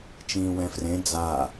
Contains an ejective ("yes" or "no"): no